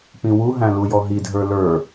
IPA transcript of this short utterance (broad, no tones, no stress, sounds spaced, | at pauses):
p ĩ w u ɦ æ̃ l u j ɔ ɦ i dʱ ə˞ l ə˞